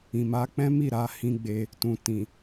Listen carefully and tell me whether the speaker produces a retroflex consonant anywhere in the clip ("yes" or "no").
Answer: no